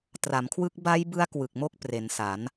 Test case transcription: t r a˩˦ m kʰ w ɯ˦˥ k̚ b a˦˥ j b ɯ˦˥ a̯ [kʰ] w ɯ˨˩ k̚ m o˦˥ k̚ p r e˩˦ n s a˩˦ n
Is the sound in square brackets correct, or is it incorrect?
incorrect